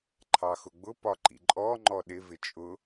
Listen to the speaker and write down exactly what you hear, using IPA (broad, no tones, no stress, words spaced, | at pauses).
ǃʰɑxʊɡ͡bʊ pɒǃḭǃʼɔ ŋ͡ǃɔɗɪ vɪt͡ʃʼʊ